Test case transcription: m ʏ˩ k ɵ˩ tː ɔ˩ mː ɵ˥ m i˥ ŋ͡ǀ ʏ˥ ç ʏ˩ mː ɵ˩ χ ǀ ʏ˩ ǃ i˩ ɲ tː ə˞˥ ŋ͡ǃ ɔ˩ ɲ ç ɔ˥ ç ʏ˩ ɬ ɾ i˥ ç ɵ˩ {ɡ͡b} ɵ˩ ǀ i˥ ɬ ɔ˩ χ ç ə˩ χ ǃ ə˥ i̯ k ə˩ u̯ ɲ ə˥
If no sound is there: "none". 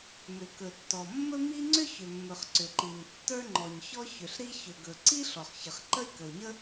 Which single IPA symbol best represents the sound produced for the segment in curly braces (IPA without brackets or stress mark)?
ɡ